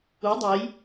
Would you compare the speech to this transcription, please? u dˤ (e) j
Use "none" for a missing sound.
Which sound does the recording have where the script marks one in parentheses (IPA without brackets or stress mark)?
e